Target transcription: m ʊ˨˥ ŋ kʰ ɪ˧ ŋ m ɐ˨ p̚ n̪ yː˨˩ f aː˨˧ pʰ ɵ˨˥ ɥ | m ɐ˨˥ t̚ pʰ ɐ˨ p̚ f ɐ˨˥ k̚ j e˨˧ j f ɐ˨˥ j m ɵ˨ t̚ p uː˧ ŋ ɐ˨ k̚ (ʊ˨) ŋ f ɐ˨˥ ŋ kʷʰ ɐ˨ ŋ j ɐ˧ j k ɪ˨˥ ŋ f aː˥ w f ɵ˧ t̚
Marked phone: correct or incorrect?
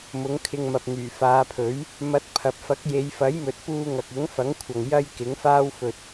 incorrect